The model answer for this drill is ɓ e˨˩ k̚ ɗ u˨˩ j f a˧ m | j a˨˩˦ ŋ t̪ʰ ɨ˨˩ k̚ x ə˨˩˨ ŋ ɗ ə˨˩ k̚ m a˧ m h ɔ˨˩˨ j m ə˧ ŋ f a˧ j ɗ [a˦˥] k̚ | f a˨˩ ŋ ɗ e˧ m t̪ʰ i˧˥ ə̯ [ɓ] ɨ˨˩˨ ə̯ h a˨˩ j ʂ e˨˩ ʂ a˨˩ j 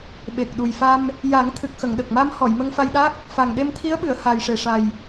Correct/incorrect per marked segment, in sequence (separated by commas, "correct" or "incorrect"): correct, correct